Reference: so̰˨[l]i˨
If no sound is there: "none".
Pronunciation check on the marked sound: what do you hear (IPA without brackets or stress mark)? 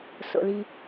l